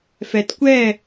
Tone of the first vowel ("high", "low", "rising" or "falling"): low